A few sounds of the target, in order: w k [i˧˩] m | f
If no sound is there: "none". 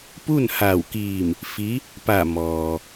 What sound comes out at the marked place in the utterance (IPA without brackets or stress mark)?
iː˧˩